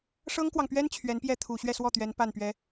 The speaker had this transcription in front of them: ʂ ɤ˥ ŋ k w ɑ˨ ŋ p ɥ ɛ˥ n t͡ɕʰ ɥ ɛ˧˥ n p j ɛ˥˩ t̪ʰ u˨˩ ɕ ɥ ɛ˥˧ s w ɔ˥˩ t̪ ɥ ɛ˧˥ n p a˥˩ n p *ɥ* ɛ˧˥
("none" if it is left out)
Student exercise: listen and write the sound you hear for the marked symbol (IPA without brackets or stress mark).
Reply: ɥ